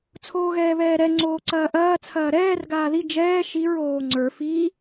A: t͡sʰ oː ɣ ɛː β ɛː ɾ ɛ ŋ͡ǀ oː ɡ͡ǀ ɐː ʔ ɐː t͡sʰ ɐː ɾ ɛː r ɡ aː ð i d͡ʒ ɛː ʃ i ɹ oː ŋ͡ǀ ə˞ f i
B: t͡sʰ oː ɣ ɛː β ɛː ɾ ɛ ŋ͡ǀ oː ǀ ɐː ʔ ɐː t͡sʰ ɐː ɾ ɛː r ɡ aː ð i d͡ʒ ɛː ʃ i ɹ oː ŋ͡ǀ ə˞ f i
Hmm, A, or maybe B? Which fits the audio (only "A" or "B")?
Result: B